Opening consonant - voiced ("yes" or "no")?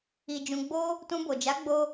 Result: yes